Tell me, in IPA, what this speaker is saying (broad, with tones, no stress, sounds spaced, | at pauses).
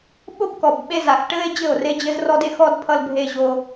ɓ o˦ b k ɔ˨ b ɓ e˦ z a˨ x ʈ ɘ˦ e̯ d͡ʑ ɘ˦˨ o̯ r e˦ d͡ʑ ɘ˦ z r ɔ˦ d e˦ x ɔ˦ d pʰ ʌ˦ l bʱ e˦ ʑ o˦